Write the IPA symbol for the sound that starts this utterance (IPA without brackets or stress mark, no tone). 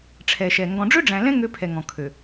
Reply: ʈ͡ʂʰ